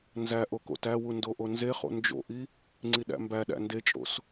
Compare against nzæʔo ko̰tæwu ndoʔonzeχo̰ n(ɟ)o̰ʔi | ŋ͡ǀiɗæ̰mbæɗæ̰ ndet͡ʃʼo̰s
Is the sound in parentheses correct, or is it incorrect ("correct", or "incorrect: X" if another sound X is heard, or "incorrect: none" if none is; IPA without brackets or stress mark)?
incorrect: d͡ʒ